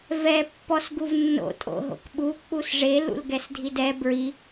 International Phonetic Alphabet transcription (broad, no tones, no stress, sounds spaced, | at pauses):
v ɛ pː ɔ s ɡ u v nː o̰ tʼ o̰ ɦ o̰ k ɓ u k͡p u s ʐ e l ṵ l ɡ ɛ s dʱ i d ɛ b ɹ i